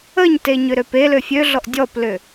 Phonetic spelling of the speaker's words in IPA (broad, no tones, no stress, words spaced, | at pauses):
əɲteɲʏɾøp elø fʲøɮɔʔ dʲɔplʏ